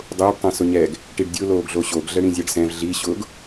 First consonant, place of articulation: alveolar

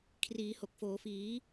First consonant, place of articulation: velar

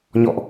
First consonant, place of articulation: palatal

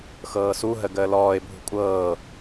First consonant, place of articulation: velar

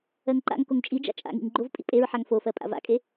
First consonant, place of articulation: velar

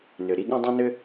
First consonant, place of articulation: alveolar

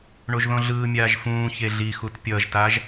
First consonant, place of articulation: retroflex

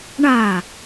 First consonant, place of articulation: retroflex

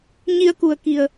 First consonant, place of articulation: palatal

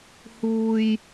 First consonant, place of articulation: glottal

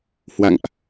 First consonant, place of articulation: glottal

